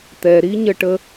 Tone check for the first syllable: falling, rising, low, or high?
low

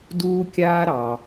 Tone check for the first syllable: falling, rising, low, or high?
high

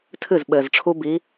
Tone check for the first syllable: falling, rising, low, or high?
falling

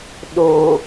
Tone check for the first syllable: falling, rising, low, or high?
low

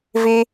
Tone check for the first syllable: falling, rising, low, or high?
high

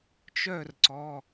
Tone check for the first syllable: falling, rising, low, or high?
falling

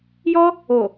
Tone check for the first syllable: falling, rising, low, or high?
high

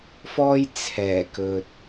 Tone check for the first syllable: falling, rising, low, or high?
high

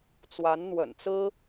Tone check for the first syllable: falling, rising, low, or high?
rising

